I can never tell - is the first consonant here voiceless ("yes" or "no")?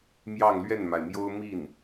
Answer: no